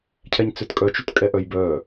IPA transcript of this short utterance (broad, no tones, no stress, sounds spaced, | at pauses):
cʰ ɛ ɲ t͡s ø t kʼ œ t͡ʃ u t kʼ ɛ ʔ œ j b œ